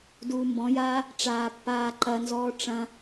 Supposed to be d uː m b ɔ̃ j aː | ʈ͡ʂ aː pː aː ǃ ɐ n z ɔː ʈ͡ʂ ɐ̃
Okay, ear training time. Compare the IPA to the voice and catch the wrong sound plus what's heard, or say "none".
none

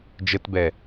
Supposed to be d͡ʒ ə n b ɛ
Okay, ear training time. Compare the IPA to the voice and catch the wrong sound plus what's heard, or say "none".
n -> t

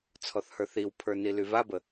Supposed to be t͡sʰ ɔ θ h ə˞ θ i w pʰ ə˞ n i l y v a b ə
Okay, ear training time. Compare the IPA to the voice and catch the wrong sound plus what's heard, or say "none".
none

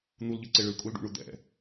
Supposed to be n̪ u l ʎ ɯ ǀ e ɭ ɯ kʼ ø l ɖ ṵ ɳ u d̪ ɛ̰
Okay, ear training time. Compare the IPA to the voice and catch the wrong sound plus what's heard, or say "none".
ø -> u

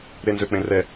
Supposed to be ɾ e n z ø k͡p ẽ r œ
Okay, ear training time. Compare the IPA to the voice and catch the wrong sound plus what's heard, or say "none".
œ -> ɛ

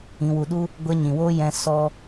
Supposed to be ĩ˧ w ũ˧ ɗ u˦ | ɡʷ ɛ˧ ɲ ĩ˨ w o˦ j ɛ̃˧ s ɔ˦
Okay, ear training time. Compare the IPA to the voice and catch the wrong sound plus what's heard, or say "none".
ũ˧ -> u˧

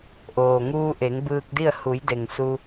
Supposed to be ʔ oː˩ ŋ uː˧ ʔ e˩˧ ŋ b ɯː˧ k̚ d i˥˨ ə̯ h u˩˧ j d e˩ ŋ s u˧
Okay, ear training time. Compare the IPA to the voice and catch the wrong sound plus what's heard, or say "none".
none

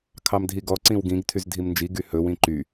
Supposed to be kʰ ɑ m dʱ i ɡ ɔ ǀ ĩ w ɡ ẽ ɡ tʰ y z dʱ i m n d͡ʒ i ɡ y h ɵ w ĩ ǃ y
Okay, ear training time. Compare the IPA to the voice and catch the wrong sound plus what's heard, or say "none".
ẽ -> ĩ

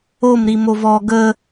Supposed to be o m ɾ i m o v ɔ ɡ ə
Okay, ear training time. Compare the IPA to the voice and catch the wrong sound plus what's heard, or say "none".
none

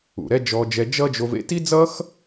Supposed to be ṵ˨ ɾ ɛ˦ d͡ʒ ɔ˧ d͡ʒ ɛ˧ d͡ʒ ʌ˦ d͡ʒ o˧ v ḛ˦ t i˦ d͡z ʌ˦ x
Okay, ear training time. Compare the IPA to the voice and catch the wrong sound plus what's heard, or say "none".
none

